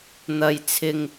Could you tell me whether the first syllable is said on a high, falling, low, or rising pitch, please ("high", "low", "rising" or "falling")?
low